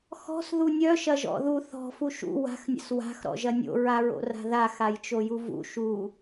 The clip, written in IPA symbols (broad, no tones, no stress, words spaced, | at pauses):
xɔ̤s ðunʲœ ʃɐʒɔ̰ðu θɔ̤ fuʃṵ wa̤x nʲə̰swa̤x ɾɔ̰ʒɐnʲo̰ ɹaɹo̰ra̤ða xajt͡ʃojuvṵ ʃu